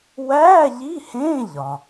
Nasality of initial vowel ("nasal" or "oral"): oral